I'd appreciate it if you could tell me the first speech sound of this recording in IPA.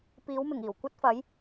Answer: p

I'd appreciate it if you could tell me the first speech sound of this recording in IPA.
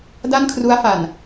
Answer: d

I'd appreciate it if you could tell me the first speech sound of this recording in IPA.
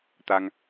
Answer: t̪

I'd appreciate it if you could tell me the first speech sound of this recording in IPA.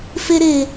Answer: f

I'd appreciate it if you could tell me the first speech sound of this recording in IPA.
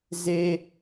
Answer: z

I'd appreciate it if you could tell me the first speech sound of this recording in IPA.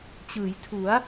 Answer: t͡ɕ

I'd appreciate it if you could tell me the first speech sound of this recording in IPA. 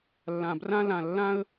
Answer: lː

